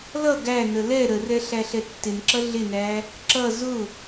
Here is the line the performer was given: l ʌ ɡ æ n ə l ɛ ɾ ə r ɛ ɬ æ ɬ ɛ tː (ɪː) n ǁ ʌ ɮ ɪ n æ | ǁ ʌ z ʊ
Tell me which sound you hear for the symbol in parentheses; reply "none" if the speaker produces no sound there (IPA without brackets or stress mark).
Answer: ɪ